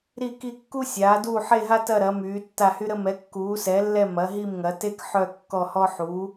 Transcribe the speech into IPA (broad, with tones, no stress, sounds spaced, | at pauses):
ɾ i˥˨ k i˥˨ kː u˥ sʲ aː˩˥ d uː˥˨ ħ e˥˨ ɦ a˥ t ɐ˥˨ ɾ ɐ˩˥ m yː˩˥ tː a˥˨ h y˥ ɾ ə˥ m ɛ˩˥ kː uː˩˥ s ɛ˩˥ lː ɛ˥˨ m ɐ˩˥ ɦ i˥˨ m ŋ ɐ˩˥ t e˥ k ħ œ˥˨ kː ɔ˥˨ h ɔ˥ ħ u˩˥